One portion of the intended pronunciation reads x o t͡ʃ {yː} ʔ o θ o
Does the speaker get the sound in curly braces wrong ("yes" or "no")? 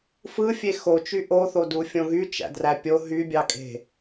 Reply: yes